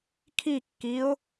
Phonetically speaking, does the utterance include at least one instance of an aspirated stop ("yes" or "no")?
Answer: yes